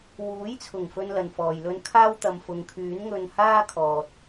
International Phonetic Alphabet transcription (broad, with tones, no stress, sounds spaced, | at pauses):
w uː˨˥ j t͡sʰ ʊ˨˩ ŋ f ɵ˥ n l ɐ˨ n f ɔː˨ j l ɵ˥ n kʰ aː˥ w t̪ ɐ˨ m f ʊ˨˧ ŋ kʰ yː˨˥ n ŋ ɵ˧ n h aː˥ kʰ ɔː˨ t̚